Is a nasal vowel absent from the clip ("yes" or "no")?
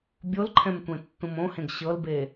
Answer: no